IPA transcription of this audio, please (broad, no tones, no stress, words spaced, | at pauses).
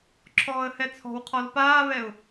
ǁʰɔːə̯hɛt͡sʰɔ̤wqʰɔl paːβɛʊ̯